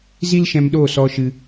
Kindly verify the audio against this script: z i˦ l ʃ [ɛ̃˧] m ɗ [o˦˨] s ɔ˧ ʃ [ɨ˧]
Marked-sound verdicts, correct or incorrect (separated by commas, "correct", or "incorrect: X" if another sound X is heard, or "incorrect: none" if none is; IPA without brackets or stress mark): correct, correct, correct